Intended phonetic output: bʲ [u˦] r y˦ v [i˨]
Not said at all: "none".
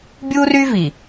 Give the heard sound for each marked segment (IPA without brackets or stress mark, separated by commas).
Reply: u˦, i˨